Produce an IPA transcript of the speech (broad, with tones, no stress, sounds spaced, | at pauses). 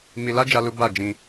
m i˧ l a˦ d͡ʒ a˦ l u˦ b a˦˨ d͡ʒ ĩ˧